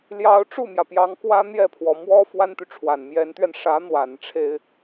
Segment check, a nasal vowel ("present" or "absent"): absent